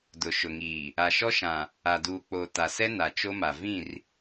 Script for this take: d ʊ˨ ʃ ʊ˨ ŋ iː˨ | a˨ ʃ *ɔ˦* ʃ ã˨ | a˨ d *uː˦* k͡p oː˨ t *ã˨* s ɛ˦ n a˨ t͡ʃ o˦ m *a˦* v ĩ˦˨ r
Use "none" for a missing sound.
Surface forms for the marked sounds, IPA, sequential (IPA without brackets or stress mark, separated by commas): ɔ˦, uː˨, a˨, a˨